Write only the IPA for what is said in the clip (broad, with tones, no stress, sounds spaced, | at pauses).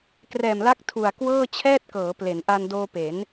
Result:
k r ɛː˨˩ m l a˦˥ k̚ tʰ u˨˩ a̯ k w ɤː˥˩ t͡ɕʰ ɛː˥˩ t̚ k ɤː˩˦ p l e˩˦ n ʔ a˧ n d oː˧ p e˩˦ n